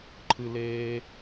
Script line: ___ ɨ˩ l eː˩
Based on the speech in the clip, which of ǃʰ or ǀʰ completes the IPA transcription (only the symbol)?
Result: ǃʰ